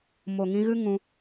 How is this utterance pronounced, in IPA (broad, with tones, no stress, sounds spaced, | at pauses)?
m o˨ ŋ ĩ˧ ɣ ɨ˦ ŋ ũ˧